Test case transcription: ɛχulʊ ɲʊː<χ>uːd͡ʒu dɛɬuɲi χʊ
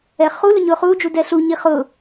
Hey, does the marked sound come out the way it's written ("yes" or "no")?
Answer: yes